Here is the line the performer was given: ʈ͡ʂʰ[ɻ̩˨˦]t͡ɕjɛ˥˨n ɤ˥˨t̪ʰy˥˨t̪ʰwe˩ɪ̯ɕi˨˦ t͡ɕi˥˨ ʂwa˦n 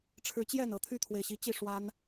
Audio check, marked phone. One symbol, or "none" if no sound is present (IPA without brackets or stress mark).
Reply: ɻ̩˨˦